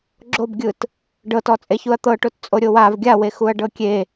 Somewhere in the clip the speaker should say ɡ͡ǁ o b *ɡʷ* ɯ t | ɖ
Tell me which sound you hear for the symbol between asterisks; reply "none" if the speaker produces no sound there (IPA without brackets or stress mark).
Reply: ɡʲ